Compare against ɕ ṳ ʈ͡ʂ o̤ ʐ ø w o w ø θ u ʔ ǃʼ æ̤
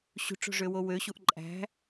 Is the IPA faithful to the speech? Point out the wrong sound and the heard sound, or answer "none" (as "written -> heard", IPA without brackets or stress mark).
θ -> ɕ